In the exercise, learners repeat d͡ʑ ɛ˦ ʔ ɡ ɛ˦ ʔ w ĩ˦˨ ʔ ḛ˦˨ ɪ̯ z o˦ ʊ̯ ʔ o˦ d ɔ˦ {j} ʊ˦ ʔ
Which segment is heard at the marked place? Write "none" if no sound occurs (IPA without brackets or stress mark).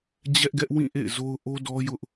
j